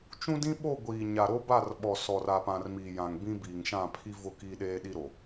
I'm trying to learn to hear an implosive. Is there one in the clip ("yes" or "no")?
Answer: yes